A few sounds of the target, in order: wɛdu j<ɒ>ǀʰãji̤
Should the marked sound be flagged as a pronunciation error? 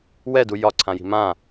no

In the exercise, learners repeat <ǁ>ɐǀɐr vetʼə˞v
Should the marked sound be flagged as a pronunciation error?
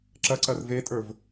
no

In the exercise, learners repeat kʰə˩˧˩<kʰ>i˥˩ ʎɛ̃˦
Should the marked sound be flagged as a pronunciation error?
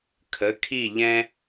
no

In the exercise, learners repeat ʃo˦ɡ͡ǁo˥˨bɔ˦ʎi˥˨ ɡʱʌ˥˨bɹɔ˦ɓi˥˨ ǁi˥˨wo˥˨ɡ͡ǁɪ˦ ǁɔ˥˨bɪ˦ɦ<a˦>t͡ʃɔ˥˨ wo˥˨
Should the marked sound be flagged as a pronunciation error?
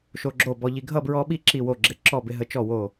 yes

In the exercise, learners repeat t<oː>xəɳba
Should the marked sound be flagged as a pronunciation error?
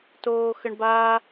no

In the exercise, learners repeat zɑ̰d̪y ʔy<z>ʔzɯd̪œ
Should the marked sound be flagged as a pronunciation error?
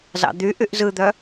yes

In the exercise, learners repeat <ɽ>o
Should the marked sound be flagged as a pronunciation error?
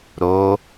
yes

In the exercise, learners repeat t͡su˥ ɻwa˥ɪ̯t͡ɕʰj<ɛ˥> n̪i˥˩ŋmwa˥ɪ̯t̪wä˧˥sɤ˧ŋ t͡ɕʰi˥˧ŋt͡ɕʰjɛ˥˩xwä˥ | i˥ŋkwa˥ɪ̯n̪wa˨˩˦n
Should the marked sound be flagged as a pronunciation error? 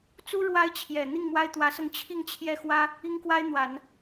yes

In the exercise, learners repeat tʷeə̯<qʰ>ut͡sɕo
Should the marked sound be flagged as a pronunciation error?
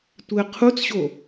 no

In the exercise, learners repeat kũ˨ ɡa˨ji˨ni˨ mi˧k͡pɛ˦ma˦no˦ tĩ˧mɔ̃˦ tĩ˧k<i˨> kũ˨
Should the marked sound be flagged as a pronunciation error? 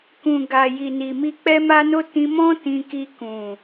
yes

